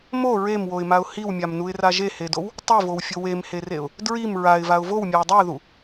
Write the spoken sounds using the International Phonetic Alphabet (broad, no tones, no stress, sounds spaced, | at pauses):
m o ɹ e m w o ɪ̯ m a ʊ̯ h i w mʲ a m n u ɪ̯ r a ʒ e h e d o w | tˤ i v o w fʲ o w e m h e r e ʊ̯ | d ɹ i m ɹ a ɪ̯ v a ʊ̯ v o w mʲ a ʊ̯ dˤ i ʊ̯ ð u